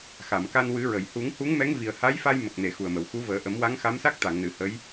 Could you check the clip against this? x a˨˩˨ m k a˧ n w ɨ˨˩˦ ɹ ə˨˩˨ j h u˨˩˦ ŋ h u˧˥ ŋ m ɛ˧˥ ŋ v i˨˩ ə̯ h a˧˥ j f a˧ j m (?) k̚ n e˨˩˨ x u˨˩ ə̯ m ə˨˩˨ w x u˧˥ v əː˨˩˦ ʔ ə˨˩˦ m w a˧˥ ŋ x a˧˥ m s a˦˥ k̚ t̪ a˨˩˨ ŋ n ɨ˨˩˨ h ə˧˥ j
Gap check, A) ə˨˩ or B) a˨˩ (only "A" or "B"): A